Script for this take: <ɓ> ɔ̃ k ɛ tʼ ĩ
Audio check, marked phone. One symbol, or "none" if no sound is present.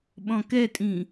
ɓ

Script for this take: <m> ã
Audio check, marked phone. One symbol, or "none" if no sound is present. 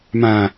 m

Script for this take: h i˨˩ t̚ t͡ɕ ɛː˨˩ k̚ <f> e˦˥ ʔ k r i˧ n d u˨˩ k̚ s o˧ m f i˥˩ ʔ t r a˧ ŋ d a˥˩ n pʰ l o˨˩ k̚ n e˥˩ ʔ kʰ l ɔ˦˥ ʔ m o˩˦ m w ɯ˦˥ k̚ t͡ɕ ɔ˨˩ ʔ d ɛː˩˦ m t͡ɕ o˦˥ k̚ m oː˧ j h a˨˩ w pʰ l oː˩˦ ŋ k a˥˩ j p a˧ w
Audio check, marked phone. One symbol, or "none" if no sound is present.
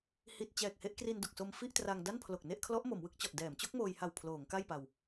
h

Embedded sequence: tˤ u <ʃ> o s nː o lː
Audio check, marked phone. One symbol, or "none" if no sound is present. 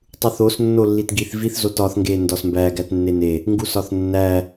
θ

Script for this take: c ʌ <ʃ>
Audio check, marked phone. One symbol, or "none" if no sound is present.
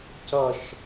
ʃ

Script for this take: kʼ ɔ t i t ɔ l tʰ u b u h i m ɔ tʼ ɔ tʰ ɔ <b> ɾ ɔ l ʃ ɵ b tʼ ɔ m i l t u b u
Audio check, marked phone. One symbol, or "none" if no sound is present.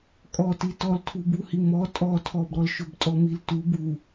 b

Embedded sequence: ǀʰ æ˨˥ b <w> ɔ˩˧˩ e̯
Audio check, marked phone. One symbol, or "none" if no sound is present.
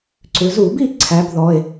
ð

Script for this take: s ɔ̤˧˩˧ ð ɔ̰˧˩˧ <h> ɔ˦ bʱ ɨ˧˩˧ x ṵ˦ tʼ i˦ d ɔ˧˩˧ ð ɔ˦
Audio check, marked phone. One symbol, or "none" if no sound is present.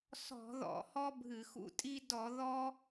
h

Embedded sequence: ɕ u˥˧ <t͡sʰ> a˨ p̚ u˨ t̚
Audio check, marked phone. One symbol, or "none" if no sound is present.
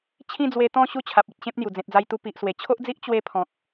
t͡ɕʰ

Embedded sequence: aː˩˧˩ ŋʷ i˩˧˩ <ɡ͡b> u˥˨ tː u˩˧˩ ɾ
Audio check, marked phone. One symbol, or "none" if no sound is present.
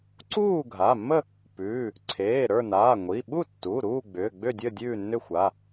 ɓ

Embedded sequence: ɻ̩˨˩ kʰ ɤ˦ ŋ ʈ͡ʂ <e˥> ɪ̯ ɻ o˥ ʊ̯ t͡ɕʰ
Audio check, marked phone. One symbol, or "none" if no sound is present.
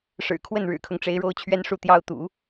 e˧˥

